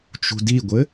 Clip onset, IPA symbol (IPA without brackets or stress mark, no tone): t͡ʃ